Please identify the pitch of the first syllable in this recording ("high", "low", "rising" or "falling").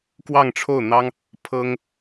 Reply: falling